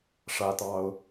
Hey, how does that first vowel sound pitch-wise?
high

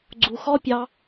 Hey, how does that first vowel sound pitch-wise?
low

